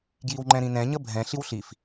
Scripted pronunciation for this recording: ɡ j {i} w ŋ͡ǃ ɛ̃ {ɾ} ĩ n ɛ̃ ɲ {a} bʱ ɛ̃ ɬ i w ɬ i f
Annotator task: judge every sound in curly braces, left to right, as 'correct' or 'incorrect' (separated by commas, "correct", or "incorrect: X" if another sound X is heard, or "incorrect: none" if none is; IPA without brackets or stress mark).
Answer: correct, correct, incorrect: ə